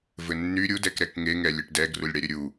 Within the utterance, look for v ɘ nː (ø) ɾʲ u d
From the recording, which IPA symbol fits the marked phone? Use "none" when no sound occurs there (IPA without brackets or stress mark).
y